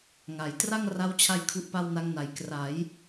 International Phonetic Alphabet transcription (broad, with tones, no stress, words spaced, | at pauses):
ŋa˩˦j tra˥˩ŋra˦˥wt͡ɕʰa˧j kʰu˦˥ʔpa˥˩wna˦˥ŋna˨˩j kra˩˦j